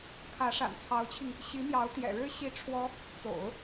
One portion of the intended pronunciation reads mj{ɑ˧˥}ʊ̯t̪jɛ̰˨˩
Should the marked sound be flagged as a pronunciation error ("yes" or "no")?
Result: no